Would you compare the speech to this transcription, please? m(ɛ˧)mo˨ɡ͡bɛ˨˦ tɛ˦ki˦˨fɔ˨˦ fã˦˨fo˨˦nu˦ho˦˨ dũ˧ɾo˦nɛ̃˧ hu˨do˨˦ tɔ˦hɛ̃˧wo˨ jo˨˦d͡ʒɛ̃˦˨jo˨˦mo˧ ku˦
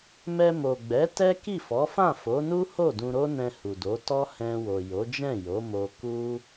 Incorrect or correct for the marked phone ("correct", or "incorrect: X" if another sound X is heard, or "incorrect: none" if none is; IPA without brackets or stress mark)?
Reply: correct